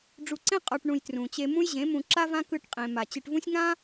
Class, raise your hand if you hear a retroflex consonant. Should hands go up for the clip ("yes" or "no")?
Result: yes